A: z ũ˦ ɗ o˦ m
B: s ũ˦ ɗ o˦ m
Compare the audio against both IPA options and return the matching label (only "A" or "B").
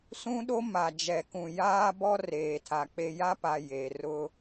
B